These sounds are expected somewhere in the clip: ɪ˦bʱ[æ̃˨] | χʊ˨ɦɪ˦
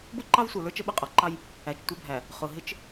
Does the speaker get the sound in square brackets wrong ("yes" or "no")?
yes